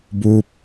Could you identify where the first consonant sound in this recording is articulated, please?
labial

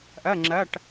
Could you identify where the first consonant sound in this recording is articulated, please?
glottal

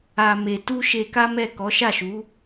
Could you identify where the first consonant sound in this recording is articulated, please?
labial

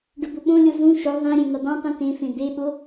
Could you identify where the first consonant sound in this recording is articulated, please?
retroflex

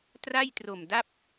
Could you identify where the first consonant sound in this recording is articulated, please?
alveolar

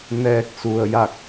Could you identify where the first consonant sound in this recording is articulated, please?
alveolar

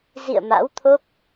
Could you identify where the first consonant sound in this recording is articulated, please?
alveolar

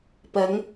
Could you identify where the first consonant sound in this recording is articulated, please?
labial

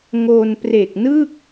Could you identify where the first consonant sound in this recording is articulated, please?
velar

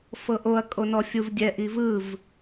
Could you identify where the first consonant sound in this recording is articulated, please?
labial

